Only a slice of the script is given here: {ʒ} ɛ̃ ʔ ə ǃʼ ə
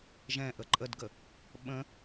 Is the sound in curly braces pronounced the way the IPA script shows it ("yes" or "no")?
yes